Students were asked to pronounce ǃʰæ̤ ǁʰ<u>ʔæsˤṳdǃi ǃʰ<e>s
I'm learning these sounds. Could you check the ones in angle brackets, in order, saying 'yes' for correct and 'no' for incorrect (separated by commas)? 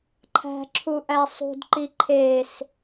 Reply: yes, yes